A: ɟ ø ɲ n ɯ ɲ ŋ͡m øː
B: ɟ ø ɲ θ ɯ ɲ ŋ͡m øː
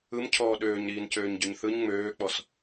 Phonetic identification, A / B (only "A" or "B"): B